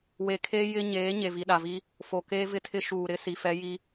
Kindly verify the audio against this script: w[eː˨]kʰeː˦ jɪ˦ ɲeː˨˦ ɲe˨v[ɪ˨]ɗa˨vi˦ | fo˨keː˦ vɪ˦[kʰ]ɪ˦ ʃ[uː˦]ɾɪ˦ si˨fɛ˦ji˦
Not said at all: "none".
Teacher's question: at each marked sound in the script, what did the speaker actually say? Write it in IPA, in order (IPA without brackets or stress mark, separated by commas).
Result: e˨, i˨, tʰ, uː˨